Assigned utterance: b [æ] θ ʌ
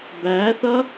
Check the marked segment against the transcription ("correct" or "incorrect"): correct